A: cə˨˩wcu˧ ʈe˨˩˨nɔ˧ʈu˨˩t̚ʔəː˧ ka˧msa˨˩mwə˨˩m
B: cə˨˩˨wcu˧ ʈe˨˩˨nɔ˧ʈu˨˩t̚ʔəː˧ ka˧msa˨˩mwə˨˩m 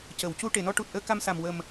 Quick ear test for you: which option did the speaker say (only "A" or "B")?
B